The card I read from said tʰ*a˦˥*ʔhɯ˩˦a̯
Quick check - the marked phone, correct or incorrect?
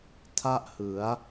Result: incorrect